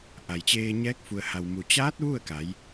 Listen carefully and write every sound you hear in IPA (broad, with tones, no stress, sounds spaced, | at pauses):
ʔ a˩ j t͡ɕ eː˧ ɲ ɛː˧˥ k̚ f u˩ ə̯ h a˩ w m u˩ t͡ɕ aː˧˥ t̚ ʋ u˥˨ ə̯ k a˩˧ j